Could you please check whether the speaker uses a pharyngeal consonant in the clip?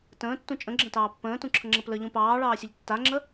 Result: no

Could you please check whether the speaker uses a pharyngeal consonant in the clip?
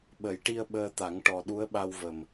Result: no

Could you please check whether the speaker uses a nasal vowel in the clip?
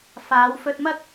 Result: no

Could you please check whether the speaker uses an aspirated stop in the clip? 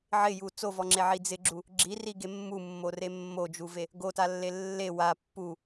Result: no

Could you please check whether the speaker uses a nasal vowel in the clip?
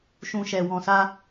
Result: yes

